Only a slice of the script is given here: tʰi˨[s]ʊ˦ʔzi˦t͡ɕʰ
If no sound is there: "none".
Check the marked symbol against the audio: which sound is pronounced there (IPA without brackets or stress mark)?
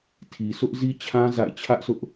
s